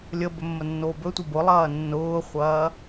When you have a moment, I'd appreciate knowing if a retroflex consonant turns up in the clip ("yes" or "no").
no